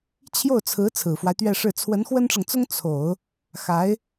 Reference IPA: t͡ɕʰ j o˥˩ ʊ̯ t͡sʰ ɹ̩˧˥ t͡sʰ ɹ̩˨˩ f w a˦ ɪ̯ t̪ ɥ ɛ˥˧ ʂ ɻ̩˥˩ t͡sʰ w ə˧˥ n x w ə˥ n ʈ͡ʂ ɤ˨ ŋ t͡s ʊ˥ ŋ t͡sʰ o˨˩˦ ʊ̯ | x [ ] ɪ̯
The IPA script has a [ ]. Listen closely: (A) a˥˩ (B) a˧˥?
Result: B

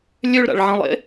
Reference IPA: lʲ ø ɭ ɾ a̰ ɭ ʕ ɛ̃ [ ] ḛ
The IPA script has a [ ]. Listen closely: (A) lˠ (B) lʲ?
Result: A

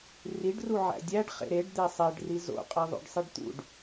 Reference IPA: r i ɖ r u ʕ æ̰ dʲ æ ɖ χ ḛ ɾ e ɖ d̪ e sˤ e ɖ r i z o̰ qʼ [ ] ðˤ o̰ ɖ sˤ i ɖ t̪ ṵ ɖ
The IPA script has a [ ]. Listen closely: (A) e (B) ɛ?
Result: A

